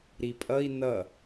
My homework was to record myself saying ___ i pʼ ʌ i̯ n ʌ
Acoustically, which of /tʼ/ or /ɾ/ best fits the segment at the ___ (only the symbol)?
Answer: ɾ